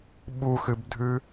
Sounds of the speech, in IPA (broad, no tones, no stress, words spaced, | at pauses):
ɓuxɨbdʱʉ